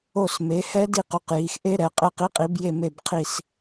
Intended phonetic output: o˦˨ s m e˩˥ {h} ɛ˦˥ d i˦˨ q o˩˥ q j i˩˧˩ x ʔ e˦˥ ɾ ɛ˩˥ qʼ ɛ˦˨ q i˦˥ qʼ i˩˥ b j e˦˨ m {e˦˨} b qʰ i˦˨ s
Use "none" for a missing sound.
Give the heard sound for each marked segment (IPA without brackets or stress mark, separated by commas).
h, e˦˨